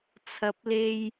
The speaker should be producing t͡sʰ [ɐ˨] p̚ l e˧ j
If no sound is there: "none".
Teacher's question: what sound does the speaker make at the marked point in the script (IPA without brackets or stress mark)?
ɐ˨